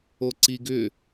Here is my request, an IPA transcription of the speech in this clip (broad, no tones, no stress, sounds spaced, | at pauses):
o ǀ i ɡ ʏ